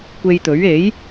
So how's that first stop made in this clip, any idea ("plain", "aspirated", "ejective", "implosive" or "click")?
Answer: plain